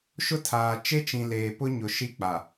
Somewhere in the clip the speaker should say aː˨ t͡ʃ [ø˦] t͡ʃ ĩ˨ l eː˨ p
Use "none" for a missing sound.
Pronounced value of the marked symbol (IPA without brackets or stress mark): e˦